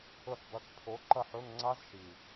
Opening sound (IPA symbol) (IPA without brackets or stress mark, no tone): ɵ